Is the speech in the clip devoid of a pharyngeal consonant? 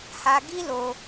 yes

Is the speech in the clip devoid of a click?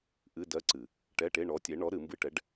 no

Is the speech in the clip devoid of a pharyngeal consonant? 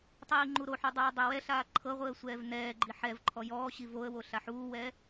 no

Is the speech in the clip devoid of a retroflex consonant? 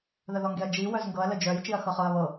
yes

